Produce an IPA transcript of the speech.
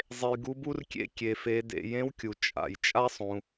zˤ e˩ j ɡ u˩˧ b u˧ r kʲ ḛ˧ kʲ e˩ f e˩˧ d ḛ˩ j ẽ˧˥ w kʲ u˩ t͡ʃʼ a̰˩ j t͡ʃʼ a˥ sˤ ũ˩

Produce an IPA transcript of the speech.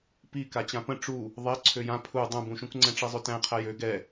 p i k a t͡ɕ ã p ə̃ ʈ͡ʂ u | ðˤ e ǀʰ ø j ã pʰ u dˤ ũ b ũ ʃ ũ k ŋ͡ǀ ɛ̃ ʈ͡ʂ i zˤ ø t æ̃ qʰ æ j ø ɡ ɛ

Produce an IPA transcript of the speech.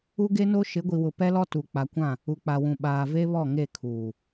u˦ ɡ e˦ n o˦ ʃ ɪ˨˦ ɡʷ i˨ w ʊ˨ p ɛ˦ l ɔ˦ t u˨ k͡p a˨ kʷ ã˦˨ | u˨ k͡p a˨ w ũ˨ ɓ aː˨ v e˦ β ɔ˦˨ ŋ e˦˨ kʰ uː˨

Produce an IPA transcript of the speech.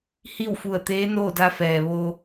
h i˥˨ w f u˧˩ ə̯ t̪ eː˧˥ n oː˥˨ d a˧ f ɛː˩ ʋ o˧

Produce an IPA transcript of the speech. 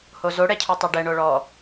h o z o ɽ ɛ cʰ o tˤ o ɖ ɛ ɳ o ɭ ɔ

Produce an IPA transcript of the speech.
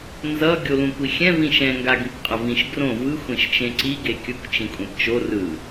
n z ʌ ɡʲ o l ũ kʷ i xʲ ɛ̃ v ĩ ʃ ɛ̃ ŋ ɡ a ɡ ĩ kʷ qʼ ʌ v ĩ ʃ ɡ r õ v ɯ xʷ ẽ ʃ t͡ʃ ẽ ǀ i ɡ e kʲ ɯ kʷ t͡ʃ ĩ kʷʼ ɛ̃ p t͡ʃ o r ɯ

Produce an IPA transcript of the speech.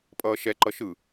pʼ ʌː ʃ ɛ ǃ ʌ ʃ ɯ

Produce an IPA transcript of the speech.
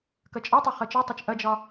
k ɐ t͡ʃʼ ɒ tˤ a χ ɐ t͡ʃ ɔ tˤ o t͡ʃ ʔ ɐ d͡ʒ ɒ

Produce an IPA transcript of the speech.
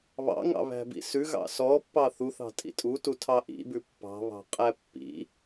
β ɑ̰ ŋ ɑ̰ β æ̤ b ḭ s ʉ ɣ ɑ̰ s ɔ pː ɑ θ u θ ɑ̤ tʼ ḭ tʼ u t u tʰ ɑ ʔ ḭ b ʉ pː ɑ̤ β ɑ̤ qʼ æ pː ḭ

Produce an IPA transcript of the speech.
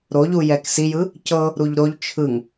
ɾ o ʎ u j ɛ k s i j ɯ | c ɤ | ɾ u ʎ ɾ o ʎ t͡ʃʰ ɯ ŋ

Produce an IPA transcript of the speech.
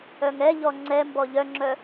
œ ŋ ɛ ʎ ɔ ŋ͡ǀ ɛ m b ɔ ʎ œ ŋ͡ǁ œ

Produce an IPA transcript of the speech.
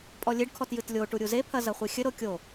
pʼ ɔ lʲ e ɖ kʰ ɔ t j ɨ t lʲ o ʈ u ɾʲ u z e pʰ ɐ z ɐ χʷ i xʲ ɘ ɾ o kʲ o

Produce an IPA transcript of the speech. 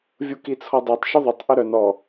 vʲ u k i t͡sʰ ɔ dˤ e tˤ ʃ œ ðˤ ʏ tˤ ʔ ʏ ɾ œ n ɔ

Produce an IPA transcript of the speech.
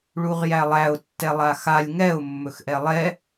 ɭ u ʁ j æ lˠ æ ʊ̯ tː ɛ lˠ a x a lʲ ŋ ɛ ʊ̯ mː ɵ x ʔ ɛ lˠ ɛ

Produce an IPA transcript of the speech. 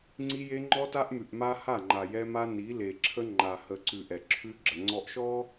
ŋ͡ǀ i˦ j e˦ ŋ͡ǃ ɔ˦ t a˦ ʔ m ʉ˨ ʔ m a˦ h a˦˨ ŋ͡ǃ a˨ j ɛ˦ m a˦ n i˨˦ l e˨ ǁʰ ə˦ ŋ͡ǃ a˨ h ə˨ ǀ ʉ˨ ʔ ɛ˨ ǁʰ ʉ˦ ɡ͡ǁ ə˨ ŋ͡ǀ ɔ˨ ʔ ʃ ɔ˦

